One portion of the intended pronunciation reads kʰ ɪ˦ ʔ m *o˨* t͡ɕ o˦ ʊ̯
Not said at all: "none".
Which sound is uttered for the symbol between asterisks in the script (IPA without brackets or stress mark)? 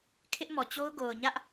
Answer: ɔ˨